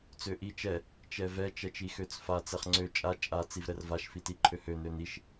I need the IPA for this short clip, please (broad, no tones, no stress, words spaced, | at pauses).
t͡søʔi t͡ʃɛ | t͡ʃɛvɛ t͡ʃɛt͡ʃixøt͡sfa t͡sɛχŋ͡ǀø t͡ʃʼa t͡ʃʼa t͡sivɾɛrvaʃ fitiǃʰøhø nøniʃ